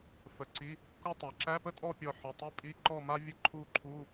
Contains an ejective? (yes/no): yes